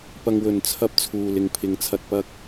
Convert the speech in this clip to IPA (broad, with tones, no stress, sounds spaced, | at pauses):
p ɐ˨ ŋ w ɵ˨˩ n t͡sʰ ɐ˧ p̚ t͡sʰ uː˨ l ɪ˨ ŋ pʰ ɪ˨ ŋ t͡sʰ ɐ˨ t̚ p ɐ˧ k̚